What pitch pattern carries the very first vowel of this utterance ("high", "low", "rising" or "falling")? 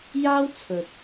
high